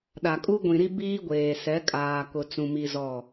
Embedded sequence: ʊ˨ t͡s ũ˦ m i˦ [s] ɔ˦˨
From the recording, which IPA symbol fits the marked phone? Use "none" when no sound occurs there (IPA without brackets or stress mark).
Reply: z